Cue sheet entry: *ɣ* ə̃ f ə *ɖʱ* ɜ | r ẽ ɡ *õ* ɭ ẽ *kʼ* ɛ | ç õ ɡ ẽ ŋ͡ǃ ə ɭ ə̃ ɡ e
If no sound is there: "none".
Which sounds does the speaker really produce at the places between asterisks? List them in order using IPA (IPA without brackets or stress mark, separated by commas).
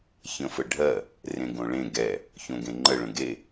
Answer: ç, ɖʱ, õ, ɡ